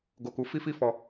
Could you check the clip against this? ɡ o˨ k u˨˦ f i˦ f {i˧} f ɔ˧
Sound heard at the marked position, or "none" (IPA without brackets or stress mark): i˦